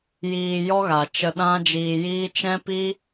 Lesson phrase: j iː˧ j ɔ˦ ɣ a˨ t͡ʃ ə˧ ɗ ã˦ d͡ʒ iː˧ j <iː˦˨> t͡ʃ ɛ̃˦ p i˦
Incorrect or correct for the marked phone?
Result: incorrect: iː˦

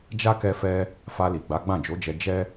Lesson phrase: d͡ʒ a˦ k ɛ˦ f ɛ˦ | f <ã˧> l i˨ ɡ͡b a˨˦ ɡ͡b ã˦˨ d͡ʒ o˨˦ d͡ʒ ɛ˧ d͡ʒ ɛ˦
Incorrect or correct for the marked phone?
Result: incorrect: a˧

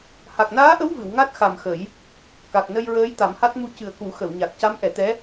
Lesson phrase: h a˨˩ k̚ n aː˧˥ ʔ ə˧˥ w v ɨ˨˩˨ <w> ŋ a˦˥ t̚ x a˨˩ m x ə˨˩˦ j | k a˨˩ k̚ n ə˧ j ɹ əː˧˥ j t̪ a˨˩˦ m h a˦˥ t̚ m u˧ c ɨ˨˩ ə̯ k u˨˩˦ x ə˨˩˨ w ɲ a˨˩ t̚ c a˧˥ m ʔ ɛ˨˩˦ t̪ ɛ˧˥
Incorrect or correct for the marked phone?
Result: correct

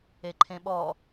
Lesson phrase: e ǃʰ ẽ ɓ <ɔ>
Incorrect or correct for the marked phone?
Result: correct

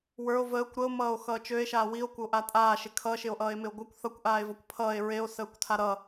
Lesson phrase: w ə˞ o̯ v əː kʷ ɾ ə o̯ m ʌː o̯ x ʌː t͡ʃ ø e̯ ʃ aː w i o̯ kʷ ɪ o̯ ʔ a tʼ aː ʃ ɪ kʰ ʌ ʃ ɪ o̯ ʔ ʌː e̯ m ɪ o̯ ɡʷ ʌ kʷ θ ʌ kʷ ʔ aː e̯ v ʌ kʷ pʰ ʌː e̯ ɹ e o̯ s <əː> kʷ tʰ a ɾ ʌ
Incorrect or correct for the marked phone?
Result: correct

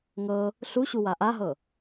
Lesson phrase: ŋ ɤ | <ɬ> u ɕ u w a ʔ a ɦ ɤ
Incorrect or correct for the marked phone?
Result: correct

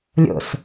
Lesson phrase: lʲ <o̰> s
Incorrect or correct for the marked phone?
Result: correct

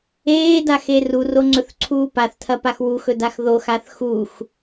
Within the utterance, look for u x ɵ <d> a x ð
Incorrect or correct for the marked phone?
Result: correct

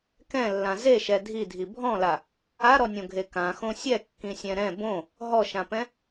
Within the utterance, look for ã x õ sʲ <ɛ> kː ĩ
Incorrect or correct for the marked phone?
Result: correct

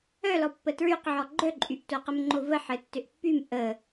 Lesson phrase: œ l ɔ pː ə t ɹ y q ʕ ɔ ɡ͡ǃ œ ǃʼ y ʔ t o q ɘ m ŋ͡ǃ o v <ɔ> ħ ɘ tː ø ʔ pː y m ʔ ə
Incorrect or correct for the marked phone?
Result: incorrect: ə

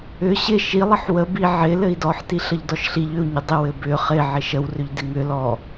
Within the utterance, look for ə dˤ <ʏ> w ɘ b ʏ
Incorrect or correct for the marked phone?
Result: incorrect: ɪ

